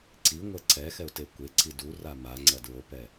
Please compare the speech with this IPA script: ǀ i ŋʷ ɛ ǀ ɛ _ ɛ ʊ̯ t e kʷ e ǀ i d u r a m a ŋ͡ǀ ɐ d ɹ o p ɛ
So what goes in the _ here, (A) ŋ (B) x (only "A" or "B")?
B